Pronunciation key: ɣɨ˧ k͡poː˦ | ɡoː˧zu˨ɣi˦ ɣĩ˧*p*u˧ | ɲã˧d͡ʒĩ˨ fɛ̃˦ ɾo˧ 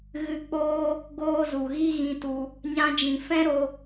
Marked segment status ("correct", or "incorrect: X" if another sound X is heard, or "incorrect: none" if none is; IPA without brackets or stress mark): incorrect: t